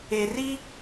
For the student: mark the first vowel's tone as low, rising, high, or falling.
low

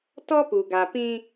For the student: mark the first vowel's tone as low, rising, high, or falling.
high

